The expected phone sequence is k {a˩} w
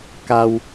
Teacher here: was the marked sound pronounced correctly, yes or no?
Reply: yes